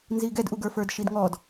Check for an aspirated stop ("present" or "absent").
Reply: absent